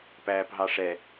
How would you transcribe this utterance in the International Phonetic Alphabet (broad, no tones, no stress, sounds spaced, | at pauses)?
p æː p ɦ ɑ ʂ ɛ